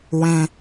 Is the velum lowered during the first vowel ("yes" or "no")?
yes